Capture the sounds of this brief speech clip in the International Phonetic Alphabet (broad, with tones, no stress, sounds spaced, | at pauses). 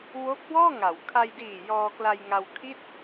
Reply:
w o˦˥ k̚ w ɔː˥˩ ŋ a˩˦ w kʰ a˧ j d iː˨˩ j ɔː˧ k l a˧ j ŋ a˧ w kʰ i˥˩ t̚